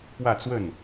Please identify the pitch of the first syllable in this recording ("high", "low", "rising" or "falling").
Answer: falling